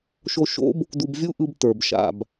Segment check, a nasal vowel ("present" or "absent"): absent